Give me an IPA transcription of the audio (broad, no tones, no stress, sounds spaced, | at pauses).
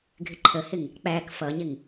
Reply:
ɡʱ ɪ ǃʰ ə h ɪ ŋ | k͡p æ k f ʌ ɲ ɪ ŋ